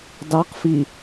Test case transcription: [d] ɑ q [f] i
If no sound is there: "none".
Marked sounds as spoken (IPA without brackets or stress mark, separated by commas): d, f